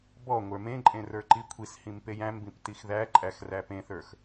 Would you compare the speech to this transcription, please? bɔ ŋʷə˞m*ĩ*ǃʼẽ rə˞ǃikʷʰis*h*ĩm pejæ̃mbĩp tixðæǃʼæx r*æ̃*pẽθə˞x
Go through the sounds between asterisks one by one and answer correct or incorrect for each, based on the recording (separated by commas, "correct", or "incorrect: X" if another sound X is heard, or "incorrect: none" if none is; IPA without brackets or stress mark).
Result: incorrect: ẽ, correct, incorrect: æ